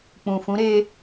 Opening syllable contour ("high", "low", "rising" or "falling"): low